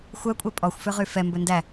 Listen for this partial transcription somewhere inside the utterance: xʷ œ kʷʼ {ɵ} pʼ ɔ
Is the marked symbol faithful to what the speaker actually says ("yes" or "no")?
no